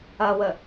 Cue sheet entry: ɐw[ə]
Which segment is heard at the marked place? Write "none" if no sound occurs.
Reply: ə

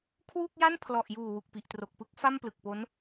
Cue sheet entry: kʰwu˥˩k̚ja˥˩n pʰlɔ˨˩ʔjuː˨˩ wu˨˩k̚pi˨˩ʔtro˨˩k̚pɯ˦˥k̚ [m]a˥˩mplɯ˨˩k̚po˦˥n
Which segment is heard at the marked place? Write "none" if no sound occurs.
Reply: f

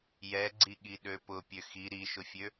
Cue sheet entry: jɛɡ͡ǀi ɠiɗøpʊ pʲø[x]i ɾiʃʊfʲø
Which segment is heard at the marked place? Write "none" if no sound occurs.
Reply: x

